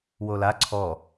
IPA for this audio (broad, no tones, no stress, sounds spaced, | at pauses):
w o l a ǀʰ ɔ